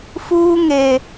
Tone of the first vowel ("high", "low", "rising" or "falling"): high